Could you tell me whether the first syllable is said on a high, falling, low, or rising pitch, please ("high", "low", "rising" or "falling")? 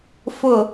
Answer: low